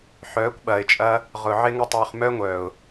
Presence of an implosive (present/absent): present